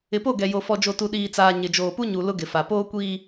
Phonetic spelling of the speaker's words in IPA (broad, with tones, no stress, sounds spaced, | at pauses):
ɪ˨ p o˦˨ ɡ ɛ˨ j o˨ f ɔ˨ d͡ʒ o˨ t u˨ ɗ iː˨ t͡s aː˨ ɲ ɪ˨ d͡ʒ oː˨ p u˦ ɲ u˨ l ʊ˦ ɡ ɪ˨ f a˨ p oː˦ kʷ iː˦